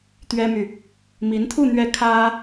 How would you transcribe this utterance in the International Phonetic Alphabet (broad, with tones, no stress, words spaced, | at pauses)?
t̪ɥɛ˥my˨ | mi˧˥nt̪ʰu˥˧ n̪ɥɛ˥˩ kʰä˥